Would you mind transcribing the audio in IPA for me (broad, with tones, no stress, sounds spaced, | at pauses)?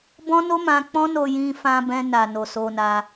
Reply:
b ɔ̃˦ n o˦ m ã˧ k͡p ɔ̃˦ n o˧ j ĩ˧ f ã˧ b ɛ̃˧ n a˨ n o˨ s o˧ n a˧